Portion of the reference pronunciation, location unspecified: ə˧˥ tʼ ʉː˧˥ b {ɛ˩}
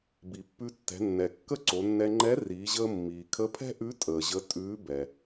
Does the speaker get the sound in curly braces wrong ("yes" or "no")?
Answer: no